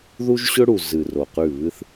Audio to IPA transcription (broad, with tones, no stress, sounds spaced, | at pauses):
ð u˦ ʒ ɕ ɵ˦ ɽ u˨ z ɨ˨ r o˨ q ʉ˦˨ β ɨ˦ θ